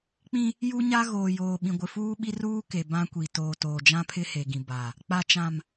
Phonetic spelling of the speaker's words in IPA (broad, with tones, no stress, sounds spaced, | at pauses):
k͡p ĩ˦ | j u˦ ɲ a˦ ɣ oː˨ j oː˨ ɓ ĩ˨ ɡʷ ɪ˨ f uː˦ ɓ i˦ r uː˦ k e˨ b ã˦ kʷ i˨ t oː˨ t oː˨ d͡ʒ ã˦ pʰ ɪ˦ h e˨ ɡ ĩ˨ b a˨ | k͡p a˨ t͡ʃ ã˨ m